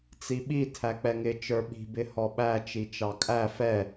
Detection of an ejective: present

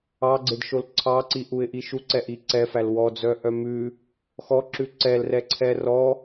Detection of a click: present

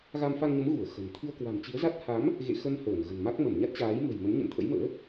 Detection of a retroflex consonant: absent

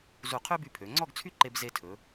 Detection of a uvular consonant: present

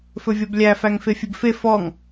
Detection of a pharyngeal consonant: absent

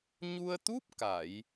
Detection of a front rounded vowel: absent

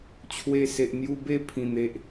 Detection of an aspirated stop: present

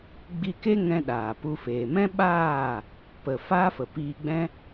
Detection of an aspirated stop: absent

